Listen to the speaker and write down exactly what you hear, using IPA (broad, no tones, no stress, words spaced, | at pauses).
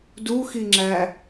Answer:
duxiŋ͡ǁæ